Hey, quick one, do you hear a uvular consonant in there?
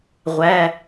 yes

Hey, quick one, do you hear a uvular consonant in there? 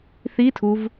no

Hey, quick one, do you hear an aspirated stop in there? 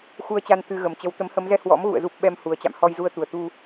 no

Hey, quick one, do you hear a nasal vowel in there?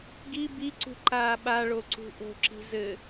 no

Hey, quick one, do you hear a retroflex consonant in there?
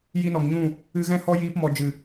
no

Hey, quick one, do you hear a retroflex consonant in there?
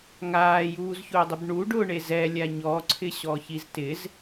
yes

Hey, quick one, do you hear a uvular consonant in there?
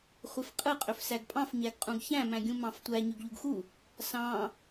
yes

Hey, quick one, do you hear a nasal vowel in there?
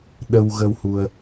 no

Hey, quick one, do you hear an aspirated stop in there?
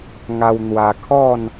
yes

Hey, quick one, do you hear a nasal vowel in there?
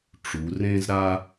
yes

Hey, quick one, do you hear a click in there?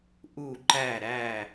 yes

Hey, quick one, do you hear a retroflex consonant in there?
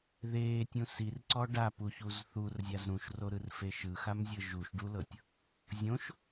yes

